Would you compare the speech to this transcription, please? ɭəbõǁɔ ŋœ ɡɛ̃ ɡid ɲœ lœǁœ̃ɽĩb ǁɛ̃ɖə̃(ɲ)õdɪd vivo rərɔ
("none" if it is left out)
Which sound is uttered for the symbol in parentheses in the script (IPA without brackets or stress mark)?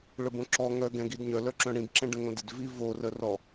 ŋ